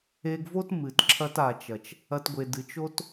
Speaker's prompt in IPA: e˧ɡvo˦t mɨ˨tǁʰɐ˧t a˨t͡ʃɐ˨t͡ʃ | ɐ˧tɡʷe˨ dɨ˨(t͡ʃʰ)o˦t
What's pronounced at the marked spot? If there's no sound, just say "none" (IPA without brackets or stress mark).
t͡ʃ